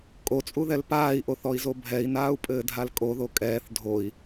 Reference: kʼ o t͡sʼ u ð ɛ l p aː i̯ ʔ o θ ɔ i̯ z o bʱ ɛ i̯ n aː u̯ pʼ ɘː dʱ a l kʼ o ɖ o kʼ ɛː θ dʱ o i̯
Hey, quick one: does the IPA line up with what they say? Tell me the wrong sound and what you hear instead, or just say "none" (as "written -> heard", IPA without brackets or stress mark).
ɖ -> ð